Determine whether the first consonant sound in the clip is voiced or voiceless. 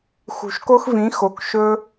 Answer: voiceless